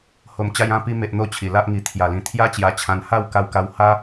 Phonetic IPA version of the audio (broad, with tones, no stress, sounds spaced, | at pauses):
h o˨˩ m t͡ɕ a˧ j ã˧ p i˧ m e˨ ʔ n̪ o˧ t͡ɕʰ i˨˩ l a˦ ʔ ŋ i˧ t̪ʰ j a˨˩ l ĩ˨˩ t̪ʰ j a˦ t͡ɕ j a˧ t͡ɕʰ ã˧ n h a˥˧ w k a˥˧ w k a˦ w h a˦